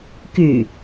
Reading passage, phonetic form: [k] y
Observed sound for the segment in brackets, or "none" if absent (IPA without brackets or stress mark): k